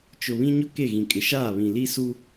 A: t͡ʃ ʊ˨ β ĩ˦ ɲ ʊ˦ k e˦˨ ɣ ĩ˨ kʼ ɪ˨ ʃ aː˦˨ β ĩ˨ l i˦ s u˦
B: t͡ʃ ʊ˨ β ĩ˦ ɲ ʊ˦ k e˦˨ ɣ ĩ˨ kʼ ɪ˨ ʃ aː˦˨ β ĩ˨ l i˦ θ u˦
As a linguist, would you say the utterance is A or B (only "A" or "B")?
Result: A